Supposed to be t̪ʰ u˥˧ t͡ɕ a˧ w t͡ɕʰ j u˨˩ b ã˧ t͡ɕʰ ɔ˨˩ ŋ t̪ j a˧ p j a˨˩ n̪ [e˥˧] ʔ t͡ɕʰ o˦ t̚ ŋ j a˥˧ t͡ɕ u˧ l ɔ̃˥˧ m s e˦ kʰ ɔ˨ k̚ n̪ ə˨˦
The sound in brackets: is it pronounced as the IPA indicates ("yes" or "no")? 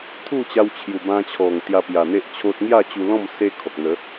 no